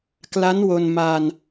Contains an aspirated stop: no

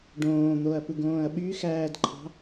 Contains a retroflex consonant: yes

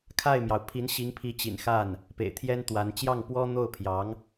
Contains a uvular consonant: no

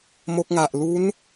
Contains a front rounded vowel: no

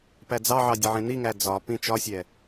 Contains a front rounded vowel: no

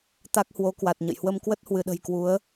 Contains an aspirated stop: no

